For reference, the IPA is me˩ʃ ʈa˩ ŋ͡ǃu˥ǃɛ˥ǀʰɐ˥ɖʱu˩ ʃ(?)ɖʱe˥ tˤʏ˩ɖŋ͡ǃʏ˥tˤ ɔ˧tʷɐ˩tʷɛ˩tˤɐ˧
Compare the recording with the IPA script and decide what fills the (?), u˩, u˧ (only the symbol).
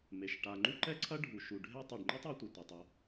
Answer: u˩